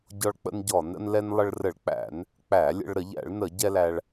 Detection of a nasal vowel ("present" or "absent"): absent